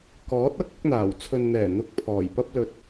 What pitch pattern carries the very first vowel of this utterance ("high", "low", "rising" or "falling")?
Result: rising